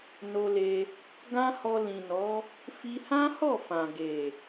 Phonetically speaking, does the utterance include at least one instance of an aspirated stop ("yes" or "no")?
no